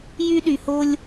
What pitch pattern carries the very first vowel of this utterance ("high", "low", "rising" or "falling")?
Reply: high